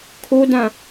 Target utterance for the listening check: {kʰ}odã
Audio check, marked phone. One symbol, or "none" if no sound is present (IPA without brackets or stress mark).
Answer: kʰ